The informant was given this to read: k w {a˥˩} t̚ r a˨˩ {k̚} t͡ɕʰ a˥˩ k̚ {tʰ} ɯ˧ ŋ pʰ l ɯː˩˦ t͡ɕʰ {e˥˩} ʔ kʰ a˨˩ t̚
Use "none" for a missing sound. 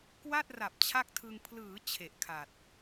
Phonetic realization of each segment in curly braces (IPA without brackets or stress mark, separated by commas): a˥˩, p̚, tʰ, e˨˩